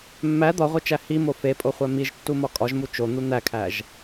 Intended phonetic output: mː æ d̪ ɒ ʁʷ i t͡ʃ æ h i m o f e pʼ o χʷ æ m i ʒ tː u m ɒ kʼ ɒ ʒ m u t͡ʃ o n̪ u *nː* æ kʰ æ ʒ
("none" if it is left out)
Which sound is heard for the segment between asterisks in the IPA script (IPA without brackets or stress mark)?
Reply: n̪